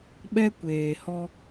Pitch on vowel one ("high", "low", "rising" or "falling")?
high